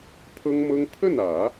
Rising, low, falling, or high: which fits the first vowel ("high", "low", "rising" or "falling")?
high